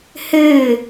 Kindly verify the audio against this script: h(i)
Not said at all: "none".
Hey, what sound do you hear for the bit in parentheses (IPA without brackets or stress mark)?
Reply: ɨ